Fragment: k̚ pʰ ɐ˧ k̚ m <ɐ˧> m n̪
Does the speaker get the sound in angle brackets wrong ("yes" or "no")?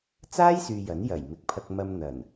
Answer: no